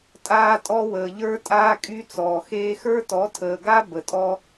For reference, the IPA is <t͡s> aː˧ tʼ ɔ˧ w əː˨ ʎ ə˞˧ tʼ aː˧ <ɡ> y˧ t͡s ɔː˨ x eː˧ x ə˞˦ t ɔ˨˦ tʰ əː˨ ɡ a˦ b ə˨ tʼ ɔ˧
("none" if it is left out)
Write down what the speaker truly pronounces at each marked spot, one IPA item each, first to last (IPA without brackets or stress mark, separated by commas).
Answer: tʼ, kʼ